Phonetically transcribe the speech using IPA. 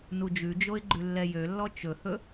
n u d͡ʒ ʉ d͡ʒ o ɪ̯ ɡ͡ǃ ʉ lː ɛ j ø lː ɔ t͡ʃ ɵ h ɵ

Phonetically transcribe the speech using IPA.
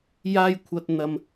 j aː˧ j kʷʰ ɐ˨ t̚ n̪ ɐ˨ m

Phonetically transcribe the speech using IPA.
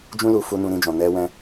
d͡ʒ ũ˦ l u˧ f u˧ n ũ˧ ɾ ĩ˧ d͡ʒ ɔ̃˨ n ɛ˧ w ɛ̃˧

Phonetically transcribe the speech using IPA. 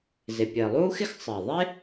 z ɪ˩ pʲ ɘː˩ lˠ uː˥ x ɪ˥ x sˤ ɘː˩ ðˤ e˥

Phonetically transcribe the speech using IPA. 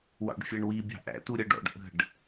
w ɑ̰ ɖ fʲ ɛ ɳ w i bʲ ɑ̤ ʔ æ̰ t u ɾʲ ʌ ɖ ɔ̰ ɖ ʔ ə̤ ɖ

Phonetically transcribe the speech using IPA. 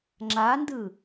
ŋ͡ǁ a n d ɯ

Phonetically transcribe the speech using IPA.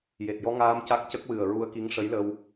j e˨˩ t̚ j ɔ˧ ŋ aː˧ m c a˦˥ k̚ c ə˦˥ k̚ w ɨ˨˩ ə̯ ɹ u˧ ə̯ k i˧˥ ŋ ʂ ə˧˥ j l ə˧ w

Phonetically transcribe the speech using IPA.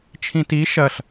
t͡ʃʰ ĩ t i ʃ ɐ ɬ

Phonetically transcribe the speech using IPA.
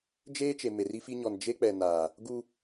d͡ʒ eː˦ t͡ʃ e˨ m e˨ r i˦ f i˦ ɲ ɔ˨ n d͡ʒ e˦ k͡p ɛ˨ n aː˨ | ɡ u˦

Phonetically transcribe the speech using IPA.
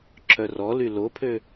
ǁʰ œ r ɔ l y l o pʰ ø

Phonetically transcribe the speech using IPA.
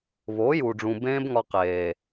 β o˨˦ j uː˨ ɖ͡ʐ ũ˨ b ẽː˦ b ŋ ɒ˧ q eː˨

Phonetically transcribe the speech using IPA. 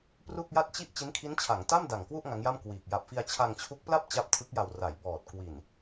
p r u˥˩ k̚ j a˥˩ t̚ t͡ɕ i˥˩ ʔ t͡ɕ i˦˥ n kʰ i˦˥ n t͡ɕʰ a˩˦ ŋ t a˥˩ m d a˨˩ ŋ k w u˥˩ ʔ ŋ a˦˥ ŋ j a˥˩ m k w iː˨˩ k̚ j a˨˩ p̚ f i˧ a̯ t͡ɕʰ a˧ ŋ t͡ɕʰ u˦˥ k̚ p l a˥˩ p̚ t͡ɕ a˦˥ p̚ tʰ ɯ˦˥ k̚ j a˨˩ w r a˩˦ j b ɔː˨˩ t̚ k w i˨˩ n

